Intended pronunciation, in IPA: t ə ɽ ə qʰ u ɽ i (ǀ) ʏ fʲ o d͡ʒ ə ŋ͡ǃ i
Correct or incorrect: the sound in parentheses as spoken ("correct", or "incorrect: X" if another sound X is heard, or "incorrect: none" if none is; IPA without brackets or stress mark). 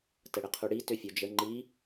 incorrect: t